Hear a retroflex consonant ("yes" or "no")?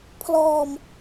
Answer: no